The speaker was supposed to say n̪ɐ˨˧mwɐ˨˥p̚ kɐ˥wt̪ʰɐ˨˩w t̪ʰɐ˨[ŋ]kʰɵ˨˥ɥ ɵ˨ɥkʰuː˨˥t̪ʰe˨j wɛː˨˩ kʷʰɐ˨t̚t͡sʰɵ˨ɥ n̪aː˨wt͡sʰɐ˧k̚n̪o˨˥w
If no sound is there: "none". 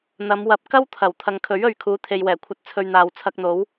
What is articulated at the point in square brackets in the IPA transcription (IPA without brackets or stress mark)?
ŋ